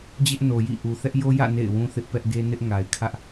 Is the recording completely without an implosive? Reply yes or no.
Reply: yes